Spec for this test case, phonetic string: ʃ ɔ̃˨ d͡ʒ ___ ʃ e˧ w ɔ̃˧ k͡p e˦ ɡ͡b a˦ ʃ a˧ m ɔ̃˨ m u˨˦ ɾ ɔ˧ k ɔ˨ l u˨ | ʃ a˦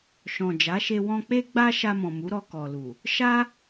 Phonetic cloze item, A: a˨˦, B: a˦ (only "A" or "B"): A